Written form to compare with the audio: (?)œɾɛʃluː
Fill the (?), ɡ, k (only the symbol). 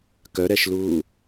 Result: k